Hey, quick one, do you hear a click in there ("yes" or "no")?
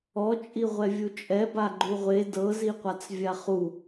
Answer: yes